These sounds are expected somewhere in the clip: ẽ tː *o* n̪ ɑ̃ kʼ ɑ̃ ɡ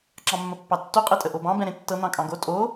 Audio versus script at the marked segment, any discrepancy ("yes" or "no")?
yes